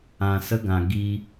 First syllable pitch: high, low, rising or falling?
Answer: low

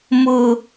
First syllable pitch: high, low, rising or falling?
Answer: low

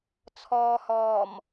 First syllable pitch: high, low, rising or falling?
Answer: low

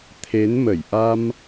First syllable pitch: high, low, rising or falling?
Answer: rising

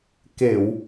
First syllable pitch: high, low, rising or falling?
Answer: low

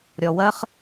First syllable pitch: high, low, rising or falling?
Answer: low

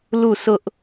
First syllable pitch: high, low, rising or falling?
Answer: falling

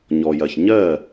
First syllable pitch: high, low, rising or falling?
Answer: low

